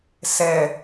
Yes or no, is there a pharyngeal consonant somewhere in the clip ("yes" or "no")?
no